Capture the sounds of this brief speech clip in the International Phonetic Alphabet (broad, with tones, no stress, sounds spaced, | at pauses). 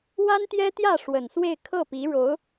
w a˥ n t̪ j ɛ˥ t̪ j ä˥˩ ʂ w ə˨˩ n s w e˥˧ ɪ̯ kʰ ɤ˥˩ p i˧˥ ɻ o˧˥ ʊ̯